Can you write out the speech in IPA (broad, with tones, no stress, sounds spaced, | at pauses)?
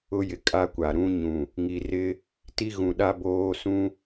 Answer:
ʊ˦ j ɪ˨ kʼ a˦ kʷ a˨ ɾ ũ˦ ɲ ũ˨ | ŋ i˨ r ɪ˦ | t i˦ ɣ ũ˨ ɗ a˦ b oː˦ s ũ˦